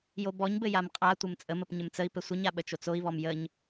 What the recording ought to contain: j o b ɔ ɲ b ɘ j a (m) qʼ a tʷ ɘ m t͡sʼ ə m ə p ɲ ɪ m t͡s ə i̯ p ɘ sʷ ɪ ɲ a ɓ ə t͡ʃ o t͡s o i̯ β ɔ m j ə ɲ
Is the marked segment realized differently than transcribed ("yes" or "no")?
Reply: no